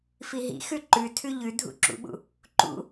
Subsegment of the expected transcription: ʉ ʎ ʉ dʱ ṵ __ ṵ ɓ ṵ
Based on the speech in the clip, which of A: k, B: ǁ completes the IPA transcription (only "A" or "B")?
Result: B